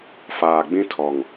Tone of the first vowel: low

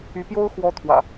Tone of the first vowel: rising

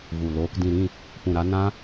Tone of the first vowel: low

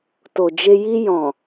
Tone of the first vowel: low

